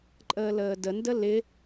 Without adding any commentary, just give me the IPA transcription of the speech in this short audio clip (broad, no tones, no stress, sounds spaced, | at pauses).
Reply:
ǃʼ əː l əː d ə n d ə l ɪ